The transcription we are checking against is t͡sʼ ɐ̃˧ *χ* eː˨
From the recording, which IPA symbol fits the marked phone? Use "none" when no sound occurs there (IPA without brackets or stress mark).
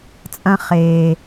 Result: χ